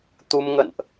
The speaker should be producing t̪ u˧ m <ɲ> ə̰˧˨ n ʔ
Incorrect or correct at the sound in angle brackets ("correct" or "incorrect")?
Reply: incorrect